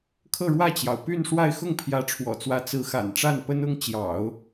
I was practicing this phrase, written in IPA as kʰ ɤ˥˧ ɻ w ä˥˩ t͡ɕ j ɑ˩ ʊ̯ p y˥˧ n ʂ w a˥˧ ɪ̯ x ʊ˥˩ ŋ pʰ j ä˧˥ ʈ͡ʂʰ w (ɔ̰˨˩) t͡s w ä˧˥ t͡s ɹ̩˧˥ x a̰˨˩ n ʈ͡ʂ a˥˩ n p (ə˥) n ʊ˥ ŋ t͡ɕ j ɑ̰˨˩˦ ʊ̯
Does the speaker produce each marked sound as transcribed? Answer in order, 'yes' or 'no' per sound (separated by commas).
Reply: yes, yes